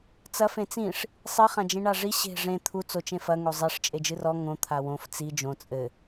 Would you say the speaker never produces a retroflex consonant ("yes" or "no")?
no